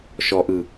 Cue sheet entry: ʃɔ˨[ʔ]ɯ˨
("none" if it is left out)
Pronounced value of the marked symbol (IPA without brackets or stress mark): ʔ